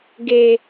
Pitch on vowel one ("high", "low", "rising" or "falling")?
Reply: high